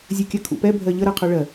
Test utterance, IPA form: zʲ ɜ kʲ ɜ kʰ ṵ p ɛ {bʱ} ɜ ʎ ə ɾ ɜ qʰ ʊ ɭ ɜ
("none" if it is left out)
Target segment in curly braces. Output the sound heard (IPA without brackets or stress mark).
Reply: bʱ